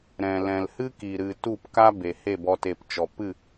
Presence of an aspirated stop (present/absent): absent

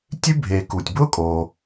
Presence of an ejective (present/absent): present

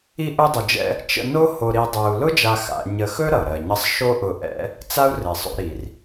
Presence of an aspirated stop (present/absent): absent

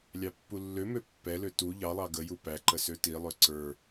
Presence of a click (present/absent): present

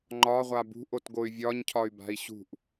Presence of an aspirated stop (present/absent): present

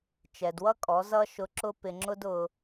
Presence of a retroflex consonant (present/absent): absent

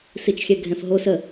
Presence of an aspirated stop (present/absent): absent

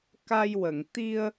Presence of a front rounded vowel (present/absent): absent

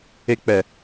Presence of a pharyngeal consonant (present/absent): absent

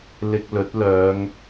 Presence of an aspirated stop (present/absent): absent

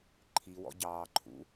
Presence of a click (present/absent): present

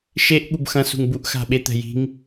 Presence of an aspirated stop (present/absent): absent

